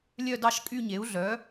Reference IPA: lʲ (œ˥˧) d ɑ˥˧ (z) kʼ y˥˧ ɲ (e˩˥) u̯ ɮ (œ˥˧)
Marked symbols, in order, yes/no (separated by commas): yes, no, yes, no